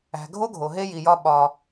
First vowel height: low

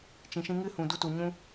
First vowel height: high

